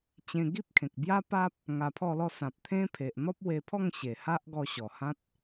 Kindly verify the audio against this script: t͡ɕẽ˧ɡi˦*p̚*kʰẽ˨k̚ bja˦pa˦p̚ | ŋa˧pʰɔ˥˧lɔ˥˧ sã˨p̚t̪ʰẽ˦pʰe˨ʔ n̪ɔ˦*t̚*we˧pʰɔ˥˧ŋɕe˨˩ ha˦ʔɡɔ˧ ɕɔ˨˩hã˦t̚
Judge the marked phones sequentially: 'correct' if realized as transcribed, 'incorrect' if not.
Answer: correct, incorrect

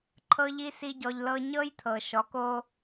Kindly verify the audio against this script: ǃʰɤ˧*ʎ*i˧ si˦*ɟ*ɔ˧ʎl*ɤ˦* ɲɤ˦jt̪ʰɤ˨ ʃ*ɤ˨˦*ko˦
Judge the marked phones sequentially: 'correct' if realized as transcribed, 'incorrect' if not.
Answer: correct, correct, correct, incorrect

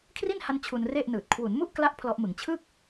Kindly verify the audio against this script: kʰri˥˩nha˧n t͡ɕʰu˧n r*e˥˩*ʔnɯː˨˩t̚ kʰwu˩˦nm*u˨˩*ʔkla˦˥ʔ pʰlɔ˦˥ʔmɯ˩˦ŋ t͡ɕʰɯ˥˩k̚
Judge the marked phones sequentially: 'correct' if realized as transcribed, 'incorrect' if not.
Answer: correct, incorrect

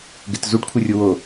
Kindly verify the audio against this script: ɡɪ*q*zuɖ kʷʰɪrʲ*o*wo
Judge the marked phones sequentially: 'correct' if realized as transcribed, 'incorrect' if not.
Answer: incorrect, incorrect

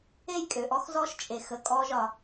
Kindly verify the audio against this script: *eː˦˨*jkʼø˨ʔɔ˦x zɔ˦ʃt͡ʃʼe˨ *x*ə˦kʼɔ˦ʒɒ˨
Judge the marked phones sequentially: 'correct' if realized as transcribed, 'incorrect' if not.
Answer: incorrect, correct

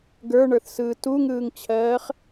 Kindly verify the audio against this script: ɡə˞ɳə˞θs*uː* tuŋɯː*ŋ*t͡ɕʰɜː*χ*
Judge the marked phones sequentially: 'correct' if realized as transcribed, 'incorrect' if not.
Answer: incorrect, correct, correct

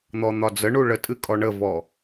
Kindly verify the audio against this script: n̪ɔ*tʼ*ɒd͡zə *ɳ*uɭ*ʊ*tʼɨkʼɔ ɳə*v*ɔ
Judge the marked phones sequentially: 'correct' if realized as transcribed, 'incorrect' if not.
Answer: incorrect, correct, incorrect, correct

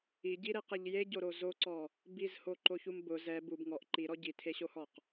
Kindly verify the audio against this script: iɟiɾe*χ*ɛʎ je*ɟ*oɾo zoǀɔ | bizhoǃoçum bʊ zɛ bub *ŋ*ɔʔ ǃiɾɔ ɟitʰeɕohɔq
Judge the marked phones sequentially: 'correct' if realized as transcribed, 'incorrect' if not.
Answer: incorrect, correct, correct

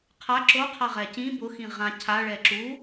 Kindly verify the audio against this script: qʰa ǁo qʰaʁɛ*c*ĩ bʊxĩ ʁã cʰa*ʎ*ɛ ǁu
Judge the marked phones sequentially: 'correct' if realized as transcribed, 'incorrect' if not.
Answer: correct, incorrect

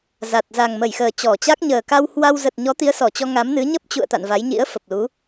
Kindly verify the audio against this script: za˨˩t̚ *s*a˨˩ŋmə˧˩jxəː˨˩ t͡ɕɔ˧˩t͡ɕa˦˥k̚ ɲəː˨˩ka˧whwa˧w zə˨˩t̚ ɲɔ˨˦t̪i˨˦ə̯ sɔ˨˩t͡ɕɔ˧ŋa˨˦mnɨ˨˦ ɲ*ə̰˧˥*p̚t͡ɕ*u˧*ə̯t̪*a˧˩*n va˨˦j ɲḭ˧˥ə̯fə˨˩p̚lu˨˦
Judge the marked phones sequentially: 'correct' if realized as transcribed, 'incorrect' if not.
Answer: incorrect, incorrect, incorrect, incorrect

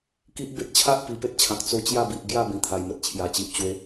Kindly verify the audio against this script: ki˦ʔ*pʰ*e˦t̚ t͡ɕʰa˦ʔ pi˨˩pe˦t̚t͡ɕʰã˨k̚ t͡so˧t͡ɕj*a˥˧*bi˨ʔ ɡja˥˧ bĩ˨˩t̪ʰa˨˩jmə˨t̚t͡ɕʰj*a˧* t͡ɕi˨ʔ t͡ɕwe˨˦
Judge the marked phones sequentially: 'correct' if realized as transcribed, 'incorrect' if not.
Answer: incorrect, correct, incorrect

